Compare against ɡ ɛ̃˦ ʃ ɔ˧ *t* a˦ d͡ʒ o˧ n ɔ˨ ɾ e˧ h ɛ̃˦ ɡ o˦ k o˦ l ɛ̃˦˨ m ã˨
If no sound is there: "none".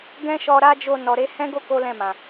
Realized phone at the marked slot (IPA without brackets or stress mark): ɾ